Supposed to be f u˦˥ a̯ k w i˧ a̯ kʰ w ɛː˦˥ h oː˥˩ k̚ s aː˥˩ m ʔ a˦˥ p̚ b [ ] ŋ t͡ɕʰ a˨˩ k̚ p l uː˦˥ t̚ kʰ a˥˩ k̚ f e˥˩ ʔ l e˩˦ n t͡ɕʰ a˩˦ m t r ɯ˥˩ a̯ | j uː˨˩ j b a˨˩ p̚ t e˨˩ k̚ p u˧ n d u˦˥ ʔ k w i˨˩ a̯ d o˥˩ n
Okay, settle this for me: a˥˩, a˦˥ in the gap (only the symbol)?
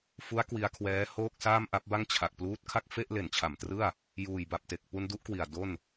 a˥˩